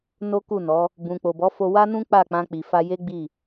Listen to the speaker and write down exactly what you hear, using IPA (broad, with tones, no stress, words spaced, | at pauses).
no˦ku˦˨nɔ˨˦ | bũ˨k͡po˨bɔ˨˦fo˧ wa˦nũ˦ k͡pa˦˨k͡pã˧k͡pi˨fa˧ je˦ɡ͡bi˦˨